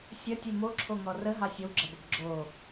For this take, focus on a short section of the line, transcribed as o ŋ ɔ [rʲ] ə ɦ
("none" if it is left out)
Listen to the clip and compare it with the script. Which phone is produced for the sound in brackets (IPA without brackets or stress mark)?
r